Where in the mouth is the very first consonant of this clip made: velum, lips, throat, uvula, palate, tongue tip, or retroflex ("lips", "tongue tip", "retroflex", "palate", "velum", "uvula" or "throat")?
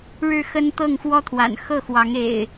retroflex